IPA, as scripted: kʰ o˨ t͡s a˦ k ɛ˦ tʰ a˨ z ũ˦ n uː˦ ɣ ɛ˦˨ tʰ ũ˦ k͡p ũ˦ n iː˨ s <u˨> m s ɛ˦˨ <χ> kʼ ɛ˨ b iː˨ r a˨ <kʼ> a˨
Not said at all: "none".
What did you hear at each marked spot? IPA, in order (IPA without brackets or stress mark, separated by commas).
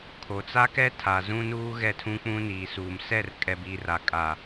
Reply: uː˨, r, kʼ